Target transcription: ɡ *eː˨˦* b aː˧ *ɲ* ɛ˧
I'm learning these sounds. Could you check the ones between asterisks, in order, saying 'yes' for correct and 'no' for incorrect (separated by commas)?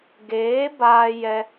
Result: yes, no